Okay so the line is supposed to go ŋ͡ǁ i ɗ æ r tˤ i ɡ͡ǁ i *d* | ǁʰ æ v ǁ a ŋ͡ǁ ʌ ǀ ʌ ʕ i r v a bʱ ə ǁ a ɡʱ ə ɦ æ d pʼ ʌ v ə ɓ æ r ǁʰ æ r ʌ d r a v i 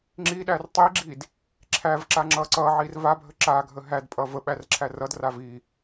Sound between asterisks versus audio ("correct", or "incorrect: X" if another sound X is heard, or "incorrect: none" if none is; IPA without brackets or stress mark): correct